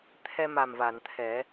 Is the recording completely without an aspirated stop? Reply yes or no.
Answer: no